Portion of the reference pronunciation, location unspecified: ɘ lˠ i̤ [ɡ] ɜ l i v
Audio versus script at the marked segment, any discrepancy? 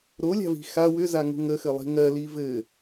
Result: yes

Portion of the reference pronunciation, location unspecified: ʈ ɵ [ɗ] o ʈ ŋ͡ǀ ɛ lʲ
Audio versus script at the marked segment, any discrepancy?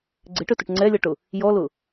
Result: yes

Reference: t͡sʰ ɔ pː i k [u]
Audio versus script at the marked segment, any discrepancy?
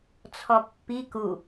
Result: no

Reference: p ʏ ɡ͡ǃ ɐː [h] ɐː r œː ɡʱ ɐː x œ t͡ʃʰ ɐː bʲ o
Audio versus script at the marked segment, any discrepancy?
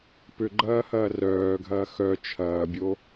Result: no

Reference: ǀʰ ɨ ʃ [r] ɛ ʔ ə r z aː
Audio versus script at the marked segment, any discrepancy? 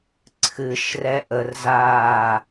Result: no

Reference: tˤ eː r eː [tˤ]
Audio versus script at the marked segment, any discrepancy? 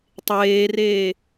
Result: yes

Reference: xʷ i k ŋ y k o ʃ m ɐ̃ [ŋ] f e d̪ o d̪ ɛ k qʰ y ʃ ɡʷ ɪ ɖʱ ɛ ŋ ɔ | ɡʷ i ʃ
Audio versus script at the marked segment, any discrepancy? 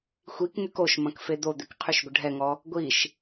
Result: yes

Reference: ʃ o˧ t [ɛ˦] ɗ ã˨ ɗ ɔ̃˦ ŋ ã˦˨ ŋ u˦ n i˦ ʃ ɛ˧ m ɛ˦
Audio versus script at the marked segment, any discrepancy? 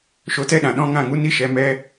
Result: no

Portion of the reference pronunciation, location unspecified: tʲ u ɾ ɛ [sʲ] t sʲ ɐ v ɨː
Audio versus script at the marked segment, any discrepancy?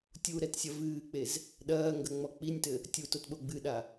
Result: yes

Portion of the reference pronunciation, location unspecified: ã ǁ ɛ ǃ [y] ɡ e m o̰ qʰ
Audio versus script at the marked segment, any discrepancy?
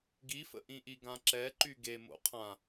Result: no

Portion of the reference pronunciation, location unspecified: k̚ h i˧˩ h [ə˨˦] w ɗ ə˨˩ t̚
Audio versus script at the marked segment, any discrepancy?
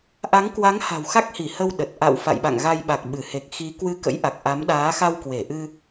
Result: yes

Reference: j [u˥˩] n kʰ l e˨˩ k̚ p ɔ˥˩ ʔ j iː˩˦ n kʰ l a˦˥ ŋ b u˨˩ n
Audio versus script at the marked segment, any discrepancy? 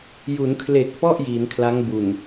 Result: yes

